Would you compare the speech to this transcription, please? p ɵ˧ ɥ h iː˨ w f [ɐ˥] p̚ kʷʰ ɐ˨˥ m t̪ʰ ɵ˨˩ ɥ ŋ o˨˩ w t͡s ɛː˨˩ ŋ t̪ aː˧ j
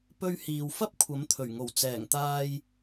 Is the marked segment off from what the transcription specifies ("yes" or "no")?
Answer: no